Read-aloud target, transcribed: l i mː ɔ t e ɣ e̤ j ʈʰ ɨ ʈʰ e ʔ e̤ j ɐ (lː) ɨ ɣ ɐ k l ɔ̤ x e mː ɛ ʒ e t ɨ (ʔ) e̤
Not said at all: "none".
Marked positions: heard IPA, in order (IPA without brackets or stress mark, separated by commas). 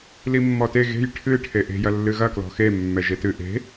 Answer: lː, ʔ